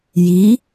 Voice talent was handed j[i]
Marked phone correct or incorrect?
correct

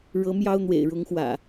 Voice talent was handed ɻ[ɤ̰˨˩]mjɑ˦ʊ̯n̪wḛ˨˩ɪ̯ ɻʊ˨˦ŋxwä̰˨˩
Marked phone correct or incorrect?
incorrect: ɤ˨˦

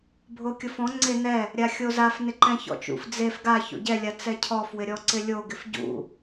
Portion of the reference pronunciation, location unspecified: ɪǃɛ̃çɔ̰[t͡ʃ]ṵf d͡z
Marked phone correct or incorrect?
correct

